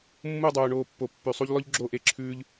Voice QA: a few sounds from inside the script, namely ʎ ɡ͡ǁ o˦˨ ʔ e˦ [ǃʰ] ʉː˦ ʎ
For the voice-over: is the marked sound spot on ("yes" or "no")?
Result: no